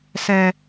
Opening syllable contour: low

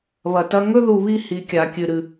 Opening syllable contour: low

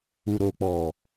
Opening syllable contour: low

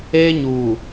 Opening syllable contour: high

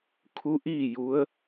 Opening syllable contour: rising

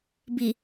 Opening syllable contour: low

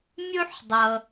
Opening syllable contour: high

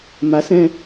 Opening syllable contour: rising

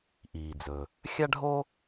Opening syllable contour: low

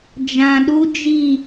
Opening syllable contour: low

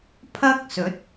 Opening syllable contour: high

